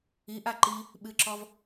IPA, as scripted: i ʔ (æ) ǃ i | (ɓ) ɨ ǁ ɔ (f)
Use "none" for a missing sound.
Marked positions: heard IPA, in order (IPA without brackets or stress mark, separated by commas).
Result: a, ɓ, v